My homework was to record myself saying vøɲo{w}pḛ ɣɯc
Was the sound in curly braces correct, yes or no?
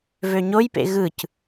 no